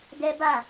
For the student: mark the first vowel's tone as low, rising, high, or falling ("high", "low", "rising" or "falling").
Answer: high